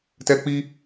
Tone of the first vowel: high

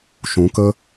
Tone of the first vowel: rising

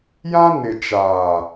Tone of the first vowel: high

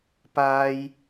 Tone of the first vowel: high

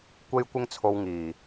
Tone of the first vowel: high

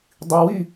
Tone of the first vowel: low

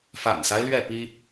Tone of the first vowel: low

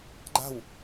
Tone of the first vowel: falling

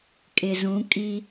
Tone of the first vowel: low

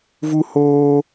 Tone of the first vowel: high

